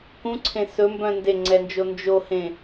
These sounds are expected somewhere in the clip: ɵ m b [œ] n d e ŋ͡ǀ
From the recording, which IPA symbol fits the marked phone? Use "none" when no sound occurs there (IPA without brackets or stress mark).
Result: œ̃